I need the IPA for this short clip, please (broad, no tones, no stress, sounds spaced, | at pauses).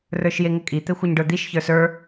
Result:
r ə˞ ʃ j e ŋ ɘ kʼ i t̪ ɘ xʷ ɘ ɲ ɖ ə˞ d̪ i ʃ ç ə˞ s ə˞